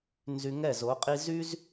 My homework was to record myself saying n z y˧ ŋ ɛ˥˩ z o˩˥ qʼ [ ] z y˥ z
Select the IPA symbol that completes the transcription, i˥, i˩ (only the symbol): i˥